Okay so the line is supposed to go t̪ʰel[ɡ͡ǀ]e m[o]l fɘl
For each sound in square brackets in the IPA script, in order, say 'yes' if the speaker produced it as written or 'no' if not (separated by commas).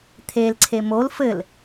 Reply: no, yes